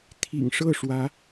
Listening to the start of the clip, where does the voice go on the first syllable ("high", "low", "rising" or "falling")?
low